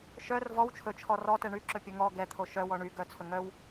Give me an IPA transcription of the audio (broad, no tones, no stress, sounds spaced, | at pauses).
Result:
ʃ œ r v ɔ w t͡ʃʰ ɵ t͡ʃʰ ɔ r ɔ t ɛ ɳ y ǁ ɵ pʲ ɵ ŋ ɔ ɡ ɛ t̪ʰ o ʃ œ w ɔ ɳ y ɡ œ t͡sʰ ɵ ŋ œ w